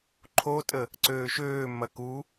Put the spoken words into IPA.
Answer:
ǃʰotʼə | ǀøːʃøː mɐku

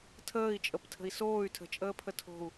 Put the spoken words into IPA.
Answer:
tʰəːi̯ t͡ʃʼəptʰə̤i̯soːy̯ tʰə̤t͡ʃʼəːpʰə tʰo̤u̯

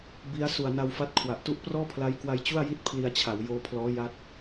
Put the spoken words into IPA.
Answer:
bi˦˥a̯ su˨˩a̯na˧wfa˦˥t̚kʰwa˨˩ʔ tu˦˥ʔprɔː˥˩pʰla˦˥jkwa˧j t͡ɕu˥˩a̯ ji˥˩t̚ pʰli˧a̯t͡ɕʰa˩˦w joː˧pʰlɔː˦˥ ja˦˥t̚

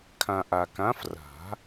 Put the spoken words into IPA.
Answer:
kʰã˨ ʔa˨kã˨˦f ra̤˨˩˦

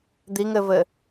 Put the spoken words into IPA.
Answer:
d̪iŋɘvɘ

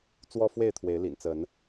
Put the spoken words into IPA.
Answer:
t͡swɔ˦fwe˥˨ɪ̯t̪ʰwe˨˦ɪ̯lḭ˨˩n t͡sə˨˦n

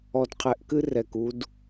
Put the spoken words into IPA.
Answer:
ɔ˨dqʰɛ˨ʔkɨ˦ rɛ˨ku˦d

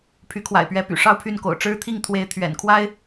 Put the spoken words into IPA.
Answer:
pʰy˧˥kʰwa̰˨˩ɪ̯pɥɛ˧˥py̰˨˩ ʂɑ˥˧ʊ̯pʰy˥˩n ko̰˨˩ʊ̯ʈ͡ʂɻ̩˥t̪ʰi˥˩ŋ t̪ʰwe˧˥ɪ̯ t̪ʰɥɛ̰˨˩nkʰwa˥ɪ̯

